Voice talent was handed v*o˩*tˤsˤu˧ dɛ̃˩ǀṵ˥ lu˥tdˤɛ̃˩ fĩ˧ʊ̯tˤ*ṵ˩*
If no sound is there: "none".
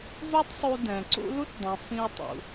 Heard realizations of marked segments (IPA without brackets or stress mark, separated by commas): o˥, ṵ˩